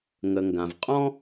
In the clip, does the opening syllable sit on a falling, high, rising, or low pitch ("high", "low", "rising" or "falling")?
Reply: low